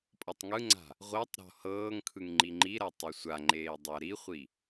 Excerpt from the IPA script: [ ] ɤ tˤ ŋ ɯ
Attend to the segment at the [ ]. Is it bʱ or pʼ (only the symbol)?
pʼ